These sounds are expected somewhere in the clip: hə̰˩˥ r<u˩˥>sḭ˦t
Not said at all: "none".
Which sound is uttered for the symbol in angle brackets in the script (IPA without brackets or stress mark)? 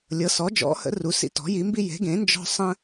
u˩˥